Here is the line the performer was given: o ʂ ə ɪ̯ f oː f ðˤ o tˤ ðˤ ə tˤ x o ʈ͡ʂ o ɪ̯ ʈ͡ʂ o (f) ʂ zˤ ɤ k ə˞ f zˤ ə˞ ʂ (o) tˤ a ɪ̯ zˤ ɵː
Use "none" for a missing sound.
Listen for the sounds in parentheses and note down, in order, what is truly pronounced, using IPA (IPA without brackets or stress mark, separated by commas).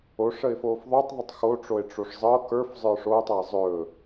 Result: none, oː